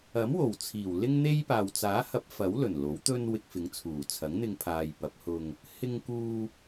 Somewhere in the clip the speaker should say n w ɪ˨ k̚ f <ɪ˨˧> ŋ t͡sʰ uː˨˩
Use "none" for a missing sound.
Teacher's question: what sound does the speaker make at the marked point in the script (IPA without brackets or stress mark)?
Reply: ɪ˨˧